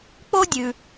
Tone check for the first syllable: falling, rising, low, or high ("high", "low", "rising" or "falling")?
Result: high